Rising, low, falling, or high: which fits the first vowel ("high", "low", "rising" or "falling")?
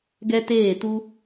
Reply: high